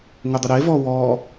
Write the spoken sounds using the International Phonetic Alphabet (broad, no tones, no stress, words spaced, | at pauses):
ŋʊdˤʊɾe vɔwɔ